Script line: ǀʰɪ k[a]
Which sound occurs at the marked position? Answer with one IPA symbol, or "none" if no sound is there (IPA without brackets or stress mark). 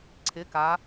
a